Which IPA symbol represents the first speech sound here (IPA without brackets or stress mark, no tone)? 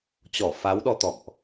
t͡ɕ